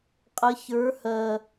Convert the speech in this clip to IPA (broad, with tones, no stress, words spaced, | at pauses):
qʼə˨˦çə˞˨˦hɜ˨˩